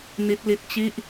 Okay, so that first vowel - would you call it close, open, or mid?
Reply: close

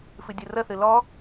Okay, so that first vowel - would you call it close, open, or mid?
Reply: close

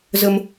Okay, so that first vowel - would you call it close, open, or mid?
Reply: mid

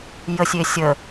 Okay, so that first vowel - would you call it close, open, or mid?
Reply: mid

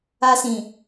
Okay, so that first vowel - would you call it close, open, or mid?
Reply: open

